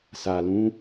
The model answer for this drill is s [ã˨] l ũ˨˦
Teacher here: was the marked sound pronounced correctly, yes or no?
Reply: no